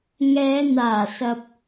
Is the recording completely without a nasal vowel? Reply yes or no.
yes